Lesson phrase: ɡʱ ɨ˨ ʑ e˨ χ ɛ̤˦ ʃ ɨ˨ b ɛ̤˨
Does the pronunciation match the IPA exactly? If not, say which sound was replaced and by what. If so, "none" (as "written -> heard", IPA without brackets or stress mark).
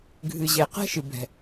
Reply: χ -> q